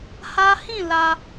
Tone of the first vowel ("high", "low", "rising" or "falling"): high